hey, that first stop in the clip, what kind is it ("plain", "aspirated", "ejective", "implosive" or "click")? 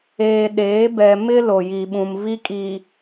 implosive